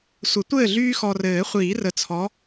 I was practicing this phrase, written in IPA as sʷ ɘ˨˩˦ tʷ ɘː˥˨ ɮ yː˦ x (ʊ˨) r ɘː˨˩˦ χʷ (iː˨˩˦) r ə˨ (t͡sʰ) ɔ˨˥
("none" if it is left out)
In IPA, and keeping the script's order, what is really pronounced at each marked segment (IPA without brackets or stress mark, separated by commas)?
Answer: ɔ˨, iː˨˩˦, t͡sʰ